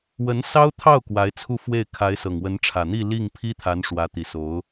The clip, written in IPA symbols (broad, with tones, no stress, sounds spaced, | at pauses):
w ə˧˥ n s ɑ˥ ʊ̯ t̪ʰ ɑ˥˩ ʊ̯ k w a˧˥ ɪ̯ t͡sʰ u˥˧ f w e˥˩ ɪ̯ kʰ a˧˥ ɪ̯ s ɤ˨˩ ŋ w ə˧˥ n ʈ͡ʂʰ ä˨˩ n̪ i˥˧ l i˥˩ ŋ pʰ i˥ t̪ʰ a˧˥ n ʂ w ä˧˥ t̪ i˨˩ s o˧˥ ʊ̯